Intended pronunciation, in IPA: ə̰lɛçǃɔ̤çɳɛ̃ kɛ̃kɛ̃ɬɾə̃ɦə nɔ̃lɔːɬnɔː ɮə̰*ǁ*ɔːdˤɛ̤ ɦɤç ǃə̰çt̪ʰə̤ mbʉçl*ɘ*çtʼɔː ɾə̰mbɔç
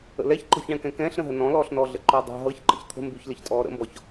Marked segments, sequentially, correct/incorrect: incorrect, correct

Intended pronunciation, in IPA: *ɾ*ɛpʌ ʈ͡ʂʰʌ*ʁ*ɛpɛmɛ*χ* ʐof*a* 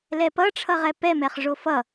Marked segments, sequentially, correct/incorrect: incorrect, correct, correct, incorrect

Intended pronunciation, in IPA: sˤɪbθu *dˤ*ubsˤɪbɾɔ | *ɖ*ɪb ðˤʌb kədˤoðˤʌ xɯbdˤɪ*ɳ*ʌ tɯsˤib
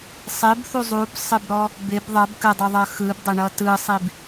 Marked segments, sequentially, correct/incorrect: incorrect, incorrect, correct

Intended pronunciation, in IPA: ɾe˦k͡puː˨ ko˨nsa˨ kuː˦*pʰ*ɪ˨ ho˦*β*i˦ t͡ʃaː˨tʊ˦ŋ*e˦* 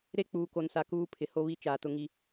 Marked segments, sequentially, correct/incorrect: correct, correct, incorrect

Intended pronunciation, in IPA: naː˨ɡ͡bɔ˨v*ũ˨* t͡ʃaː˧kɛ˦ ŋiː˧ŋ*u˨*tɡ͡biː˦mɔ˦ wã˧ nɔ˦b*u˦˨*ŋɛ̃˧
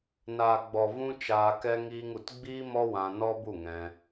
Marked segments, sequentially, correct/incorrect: incorrect, correct, correct

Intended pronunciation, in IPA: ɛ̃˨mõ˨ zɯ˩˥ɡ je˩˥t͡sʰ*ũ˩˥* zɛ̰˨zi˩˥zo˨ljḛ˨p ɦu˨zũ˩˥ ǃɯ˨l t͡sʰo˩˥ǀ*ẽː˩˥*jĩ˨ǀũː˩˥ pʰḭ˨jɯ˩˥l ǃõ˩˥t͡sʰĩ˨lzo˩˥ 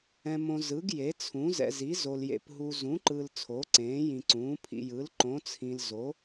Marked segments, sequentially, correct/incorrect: correct, correct

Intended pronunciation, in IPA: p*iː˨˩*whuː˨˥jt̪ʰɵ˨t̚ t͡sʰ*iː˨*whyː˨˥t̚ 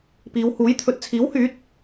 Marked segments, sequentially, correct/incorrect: incorrect, incorrect

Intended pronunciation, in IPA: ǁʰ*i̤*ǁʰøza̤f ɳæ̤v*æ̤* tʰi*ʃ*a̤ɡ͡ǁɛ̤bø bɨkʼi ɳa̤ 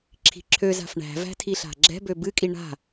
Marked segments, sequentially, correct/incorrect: correct, correct, incorrect

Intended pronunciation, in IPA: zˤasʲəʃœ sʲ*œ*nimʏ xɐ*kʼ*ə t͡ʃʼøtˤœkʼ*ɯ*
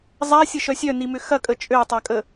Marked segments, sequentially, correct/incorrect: correct, correct, incorrect

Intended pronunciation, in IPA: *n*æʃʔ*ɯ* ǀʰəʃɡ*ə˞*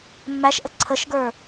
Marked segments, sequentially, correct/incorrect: incorrect, incorrect, correct

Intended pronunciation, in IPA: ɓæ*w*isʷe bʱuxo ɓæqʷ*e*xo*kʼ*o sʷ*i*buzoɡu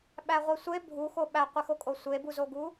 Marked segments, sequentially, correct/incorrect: incorrect, incorrect, correct, incorrect

